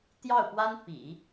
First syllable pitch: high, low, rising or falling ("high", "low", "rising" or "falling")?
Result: falling